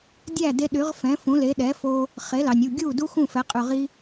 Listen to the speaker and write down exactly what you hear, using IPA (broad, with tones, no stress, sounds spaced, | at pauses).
dʲ æ˥˩ d e˧ ɗ y˩˥ ʁ f ɛ̃˩˥ f ũ˩˥ l e˩˥ ɗ ɛ˩˥ f o˧ | χ e˩˥ l ɑ˩ nʲ u˥˩ ɡʲ u˥˩ d u˥ x ũ˥˩ f ɛ˩˥ qʼ ʉ˩ ʁ i˧